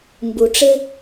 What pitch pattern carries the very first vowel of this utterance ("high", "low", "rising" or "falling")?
low